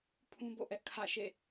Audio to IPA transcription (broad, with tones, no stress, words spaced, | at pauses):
pʰũ˦bo̰˦˨ ʔɛ˦ʔkʰä̰˦˨ʃḛ˦˨